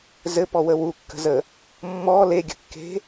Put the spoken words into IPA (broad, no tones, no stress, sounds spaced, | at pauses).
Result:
z ɘ p ɔ w ə w u kː ə̤ z ə | mː ɔ l e ɡʲ ə̤ kː e̤